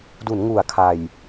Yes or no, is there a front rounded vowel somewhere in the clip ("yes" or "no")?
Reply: no